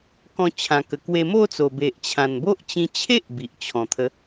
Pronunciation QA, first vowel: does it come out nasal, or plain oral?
nasal